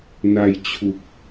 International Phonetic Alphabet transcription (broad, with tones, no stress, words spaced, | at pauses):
na˧j t͡ɕʰu˨˩k̚